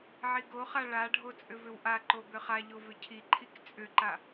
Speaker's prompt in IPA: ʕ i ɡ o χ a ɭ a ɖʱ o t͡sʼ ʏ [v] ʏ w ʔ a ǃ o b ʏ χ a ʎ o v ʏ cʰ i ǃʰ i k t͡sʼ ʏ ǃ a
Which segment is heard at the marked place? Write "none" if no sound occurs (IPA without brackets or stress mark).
v